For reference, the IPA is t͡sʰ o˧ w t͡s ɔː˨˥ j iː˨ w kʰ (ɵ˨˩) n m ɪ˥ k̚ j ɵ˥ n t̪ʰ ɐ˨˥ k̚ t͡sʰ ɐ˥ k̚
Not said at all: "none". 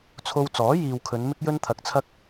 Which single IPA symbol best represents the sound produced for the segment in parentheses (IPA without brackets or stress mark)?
ɵ˨˧